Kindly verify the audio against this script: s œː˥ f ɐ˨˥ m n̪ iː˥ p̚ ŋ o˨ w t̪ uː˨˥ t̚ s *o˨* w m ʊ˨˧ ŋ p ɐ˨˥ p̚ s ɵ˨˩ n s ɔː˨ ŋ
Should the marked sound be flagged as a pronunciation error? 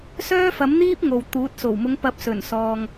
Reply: yes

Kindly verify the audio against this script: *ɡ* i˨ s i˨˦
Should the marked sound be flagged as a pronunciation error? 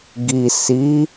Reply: no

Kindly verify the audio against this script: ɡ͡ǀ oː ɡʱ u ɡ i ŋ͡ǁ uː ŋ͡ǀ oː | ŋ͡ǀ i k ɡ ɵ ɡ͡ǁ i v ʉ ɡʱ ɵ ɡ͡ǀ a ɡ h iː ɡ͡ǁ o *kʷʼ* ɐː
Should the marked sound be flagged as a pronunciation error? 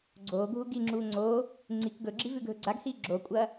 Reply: no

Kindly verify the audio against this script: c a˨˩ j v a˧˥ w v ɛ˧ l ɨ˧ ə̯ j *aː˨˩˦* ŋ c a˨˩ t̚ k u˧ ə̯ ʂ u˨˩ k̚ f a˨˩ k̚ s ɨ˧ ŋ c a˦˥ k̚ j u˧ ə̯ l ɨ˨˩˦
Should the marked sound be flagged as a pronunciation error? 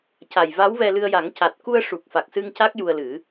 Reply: yes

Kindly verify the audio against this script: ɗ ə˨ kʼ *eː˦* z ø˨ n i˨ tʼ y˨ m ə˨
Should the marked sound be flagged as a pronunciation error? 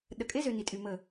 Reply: yes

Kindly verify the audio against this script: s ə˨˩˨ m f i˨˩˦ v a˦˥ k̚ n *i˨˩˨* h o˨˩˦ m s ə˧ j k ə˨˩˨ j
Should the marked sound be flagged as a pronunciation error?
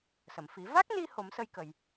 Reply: yes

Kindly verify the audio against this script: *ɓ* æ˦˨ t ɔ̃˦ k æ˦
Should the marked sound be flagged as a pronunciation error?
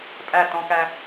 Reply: yes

